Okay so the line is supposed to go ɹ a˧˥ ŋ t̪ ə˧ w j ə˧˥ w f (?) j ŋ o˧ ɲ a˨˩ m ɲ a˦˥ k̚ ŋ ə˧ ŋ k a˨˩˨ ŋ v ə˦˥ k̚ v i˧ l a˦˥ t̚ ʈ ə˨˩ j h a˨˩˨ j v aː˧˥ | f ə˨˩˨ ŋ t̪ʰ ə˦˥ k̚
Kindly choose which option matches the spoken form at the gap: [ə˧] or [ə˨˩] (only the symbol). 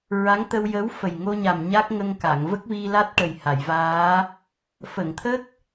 ə˨˩